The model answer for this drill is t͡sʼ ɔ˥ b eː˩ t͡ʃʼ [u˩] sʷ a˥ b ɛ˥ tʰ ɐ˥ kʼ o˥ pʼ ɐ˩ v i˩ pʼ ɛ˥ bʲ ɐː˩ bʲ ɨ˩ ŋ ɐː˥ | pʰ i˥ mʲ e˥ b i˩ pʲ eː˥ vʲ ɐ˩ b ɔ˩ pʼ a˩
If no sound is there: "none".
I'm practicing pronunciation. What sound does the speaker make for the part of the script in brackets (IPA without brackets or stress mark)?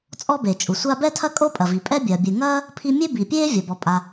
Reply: u˩